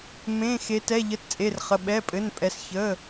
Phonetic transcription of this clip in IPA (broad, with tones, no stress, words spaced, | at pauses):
mẽː˩˧˩xe˩˧tɛ˩˧˩ ʎə˩˧˩tt͡sʼe˩˧˩r χə˩˧˩ ɓɛ˩˧˩pʼɘ˩˧˩npʼɛ˩˧s çəː˩˧˩